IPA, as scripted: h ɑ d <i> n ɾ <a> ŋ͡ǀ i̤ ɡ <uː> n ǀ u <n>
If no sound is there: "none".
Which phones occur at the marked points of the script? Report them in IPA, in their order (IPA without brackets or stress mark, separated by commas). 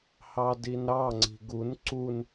i, ɑ, u, n